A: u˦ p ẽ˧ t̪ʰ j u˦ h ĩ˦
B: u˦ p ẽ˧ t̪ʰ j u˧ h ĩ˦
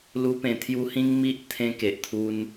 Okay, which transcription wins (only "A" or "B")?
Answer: A